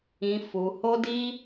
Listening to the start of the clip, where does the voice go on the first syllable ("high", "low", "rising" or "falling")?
low